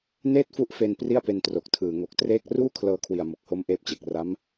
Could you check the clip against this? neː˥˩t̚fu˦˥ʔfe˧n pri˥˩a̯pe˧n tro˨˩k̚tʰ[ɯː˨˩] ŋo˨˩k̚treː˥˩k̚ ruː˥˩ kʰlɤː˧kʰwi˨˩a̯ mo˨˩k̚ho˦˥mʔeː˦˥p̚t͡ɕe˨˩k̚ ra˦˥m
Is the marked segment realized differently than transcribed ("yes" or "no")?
no